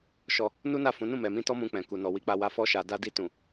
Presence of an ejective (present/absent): absent